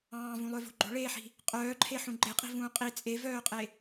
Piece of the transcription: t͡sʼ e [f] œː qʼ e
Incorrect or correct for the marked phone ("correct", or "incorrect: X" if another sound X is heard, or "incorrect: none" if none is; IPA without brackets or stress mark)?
incorrect: v